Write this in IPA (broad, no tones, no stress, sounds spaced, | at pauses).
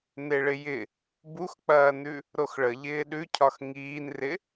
n e ɭ ɪ j ɪ | b u x k͡p ɐː n ʉ | ɾ o x ɭ ə ʎ ɪː ɗ ʉ cʰ ɒ x ŋ iː n r ɪ